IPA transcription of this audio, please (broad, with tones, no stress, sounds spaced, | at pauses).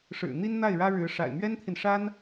ʂ ɻ̩˨˩ n̪ i˥ n n̪ a˥˩ ɪ̯ ɻ ä˥ ɻ ɻ̩˧˥ ʂ a̰˨˩ ɪ̯ m ɥ ɛ˥ n t̪ʰ i˨ n ʂ a˥ n